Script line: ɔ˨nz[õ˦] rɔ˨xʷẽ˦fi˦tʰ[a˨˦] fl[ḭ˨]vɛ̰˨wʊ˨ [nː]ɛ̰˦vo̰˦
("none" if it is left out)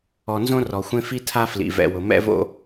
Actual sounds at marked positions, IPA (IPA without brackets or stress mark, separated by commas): õ˦, a˦, ḭ˨, m